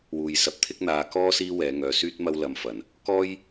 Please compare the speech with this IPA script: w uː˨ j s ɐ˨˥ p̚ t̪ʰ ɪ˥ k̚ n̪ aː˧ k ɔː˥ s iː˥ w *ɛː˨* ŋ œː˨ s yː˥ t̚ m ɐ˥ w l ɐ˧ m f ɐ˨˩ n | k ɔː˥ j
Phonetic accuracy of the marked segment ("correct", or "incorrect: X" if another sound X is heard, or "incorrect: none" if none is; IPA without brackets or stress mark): incorrect: ɛː˨˧